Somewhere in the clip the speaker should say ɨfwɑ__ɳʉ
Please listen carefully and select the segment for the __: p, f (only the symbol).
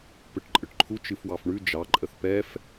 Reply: f